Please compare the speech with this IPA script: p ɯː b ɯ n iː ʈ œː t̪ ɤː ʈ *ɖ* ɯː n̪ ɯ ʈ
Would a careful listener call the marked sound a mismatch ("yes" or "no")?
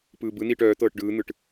no